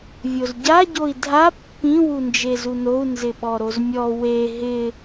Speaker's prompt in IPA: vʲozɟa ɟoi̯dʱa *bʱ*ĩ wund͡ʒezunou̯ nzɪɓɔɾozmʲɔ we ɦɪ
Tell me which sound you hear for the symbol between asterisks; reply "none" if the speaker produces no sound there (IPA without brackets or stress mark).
pː